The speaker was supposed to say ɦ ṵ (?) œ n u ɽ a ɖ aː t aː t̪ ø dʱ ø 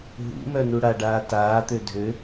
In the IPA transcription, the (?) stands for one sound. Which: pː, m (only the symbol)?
m